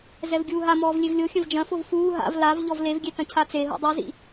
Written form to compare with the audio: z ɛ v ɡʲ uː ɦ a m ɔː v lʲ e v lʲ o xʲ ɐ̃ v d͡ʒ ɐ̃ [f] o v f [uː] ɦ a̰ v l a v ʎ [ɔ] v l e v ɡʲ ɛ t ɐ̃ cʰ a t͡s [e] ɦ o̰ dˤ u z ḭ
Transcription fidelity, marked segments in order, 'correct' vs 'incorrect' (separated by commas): correct, correct, correct, correct